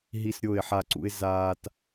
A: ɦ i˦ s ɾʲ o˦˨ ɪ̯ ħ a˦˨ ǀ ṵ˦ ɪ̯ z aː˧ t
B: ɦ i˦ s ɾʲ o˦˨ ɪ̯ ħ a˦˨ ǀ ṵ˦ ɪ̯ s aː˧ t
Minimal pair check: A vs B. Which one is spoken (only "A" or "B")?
A